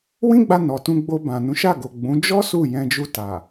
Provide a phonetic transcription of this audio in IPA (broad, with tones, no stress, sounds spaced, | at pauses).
w ĩ˦ ɡ͡b a˧ n ɔ˨ t ũ˧ ɡ͡b o˧ b ã˨ n ũ˨˦ ʃ a˦˨ ɡ o˨ ɡ͡b ũ˨˦ d͡ʒ ɔ˦ s u˦˨ j ɛ̃˧ d͡ʒ u˧ t a˨